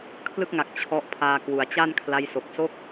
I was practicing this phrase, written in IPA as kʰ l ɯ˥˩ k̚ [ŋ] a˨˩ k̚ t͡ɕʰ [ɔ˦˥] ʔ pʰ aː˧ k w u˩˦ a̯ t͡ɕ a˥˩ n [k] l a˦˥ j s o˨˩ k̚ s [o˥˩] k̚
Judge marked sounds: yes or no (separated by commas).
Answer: yes, yes, no, yes